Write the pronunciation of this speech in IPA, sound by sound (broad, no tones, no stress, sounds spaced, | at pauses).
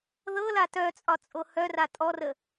ð ɤ l a t œ t͡sʼ ɒ t͡sʼ o h œ r a tʼ ɔ r ə